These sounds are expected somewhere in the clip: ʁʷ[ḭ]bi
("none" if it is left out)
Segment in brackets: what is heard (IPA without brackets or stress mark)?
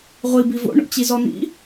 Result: i